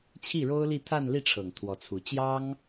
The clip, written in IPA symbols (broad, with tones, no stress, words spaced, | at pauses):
t͡ɕʰi˥˩ɻo˥ʊ̯li˥˧ t̪ʰa˥˧nli˥˩ʈ͡ʂʰɤ˨˩ŋ t̪ʰwɔ˧˥t͡sʰu˧˥ t͡ɕjɑ˥ŋ